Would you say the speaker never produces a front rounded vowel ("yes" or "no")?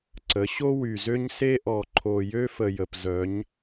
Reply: no